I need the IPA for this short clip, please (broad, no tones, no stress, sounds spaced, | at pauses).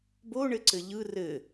b o ɳ ɘ ǀ ɘ ʎ ɯ r ɘ